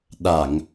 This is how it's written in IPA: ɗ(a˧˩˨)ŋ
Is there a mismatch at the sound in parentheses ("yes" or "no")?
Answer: no